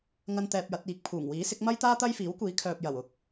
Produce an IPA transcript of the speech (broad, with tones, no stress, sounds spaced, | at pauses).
ŋ ɐ˥ n t̪ ɛː˧ p̚ j ɐ˨˥ t̚ iː˨˥ k̚ pʰ uː˨˩ ŋ w iː˨˥ s ɪ˨˥ k̚ m ɐ˥ j t̪ aː˥ t̪ ɐ˥ j f iː˨˥ w kʷ iː˨˥ kʰ œː˨ p̚ j ɐ˨˩ w ʊ˨˥ k̚